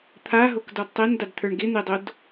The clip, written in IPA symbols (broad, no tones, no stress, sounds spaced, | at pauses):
t̪ʰ a ɦ o k d ɔ d tˤ e n d a d t̪ʰ ə˞ ɳ ɡ ɪ n̪ e dˤ o d